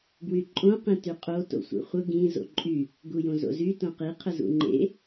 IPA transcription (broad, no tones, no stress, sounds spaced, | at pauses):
ɡ w y ǃʼ õ q ĩ t y qʼ o t o̰ sʷ ḛ χʷ ə ɡ ĩ z o̰ ǃʼ y | ɡ u j õ z o̰ z y t õ q i qʰ ə z ṵ ŋ͡ǃ ḛ